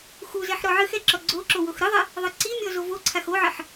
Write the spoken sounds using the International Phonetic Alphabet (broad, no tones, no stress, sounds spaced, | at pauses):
x u z ɛ ħ ɾ ɔ ʕ ɨ x ɛ ǁ ɔ ɡ͡ǀ o ǁ o w o x ɾ ɨ ðˤ ɛ | ðˤ ɘ ǀ i mʲ ɔ z o v o ǀʰ a x o ʕ ɘ ħ